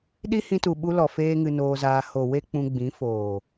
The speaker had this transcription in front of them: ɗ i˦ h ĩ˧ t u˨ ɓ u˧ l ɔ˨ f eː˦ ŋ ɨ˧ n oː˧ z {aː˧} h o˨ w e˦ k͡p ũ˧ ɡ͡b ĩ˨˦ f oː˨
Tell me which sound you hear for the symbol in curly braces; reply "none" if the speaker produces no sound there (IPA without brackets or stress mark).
aː˧